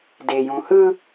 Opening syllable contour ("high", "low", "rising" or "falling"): low